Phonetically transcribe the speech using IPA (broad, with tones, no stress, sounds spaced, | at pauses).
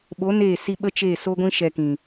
ɓ o˨˦ n eː˦˨ s i˦ ɓ ə˦ t͡ʃ e˦˨ s o˦ ɡʷ ĩ˦ ʃ ɛ˧ k ĩ˨